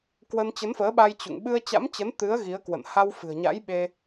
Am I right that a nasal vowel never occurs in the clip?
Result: yes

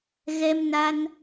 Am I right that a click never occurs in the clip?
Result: yes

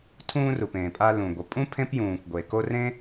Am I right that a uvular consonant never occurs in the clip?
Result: yes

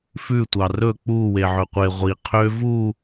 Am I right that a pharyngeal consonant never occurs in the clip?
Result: no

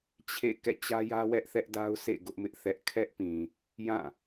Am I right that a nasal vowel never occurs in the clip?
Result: no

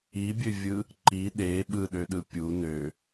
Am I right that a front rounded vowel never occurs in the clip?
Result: no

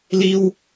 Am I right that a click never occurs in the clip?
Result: yes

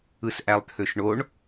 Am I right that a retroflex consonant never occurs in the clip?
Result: no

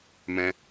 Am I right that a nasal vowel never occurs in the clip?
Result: no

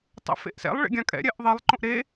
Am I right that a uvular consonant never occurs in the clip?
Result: yes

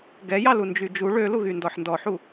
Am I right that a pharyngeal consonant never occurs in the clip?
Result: no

